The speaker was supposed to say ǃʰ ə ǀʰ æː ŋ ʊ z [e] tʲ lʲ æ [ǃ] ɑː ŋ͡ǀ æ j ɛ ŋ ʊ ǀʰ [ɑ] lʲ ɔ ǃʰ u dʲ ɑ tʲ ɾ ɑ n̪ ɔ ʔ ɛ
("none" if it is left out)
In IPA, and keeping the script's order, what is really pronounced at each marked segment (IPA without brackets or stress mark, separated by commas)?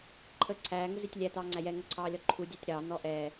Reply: i, t̪, ɑː